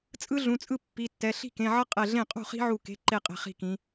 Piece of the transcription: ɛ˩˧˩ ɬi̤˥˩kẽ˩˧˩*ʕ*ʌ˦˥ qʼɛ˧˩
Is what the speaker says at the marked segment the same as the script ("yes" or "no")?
yes